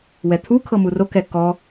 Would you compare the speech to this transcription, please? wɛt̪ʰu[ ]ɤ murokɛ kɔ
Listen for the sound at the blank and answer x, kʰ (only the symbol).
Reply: kʰ